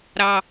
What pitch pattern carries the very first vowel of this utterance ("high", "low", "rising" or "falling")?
low